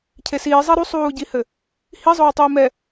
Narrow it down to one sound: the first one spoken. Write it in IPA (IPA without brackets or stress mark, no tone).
cʰ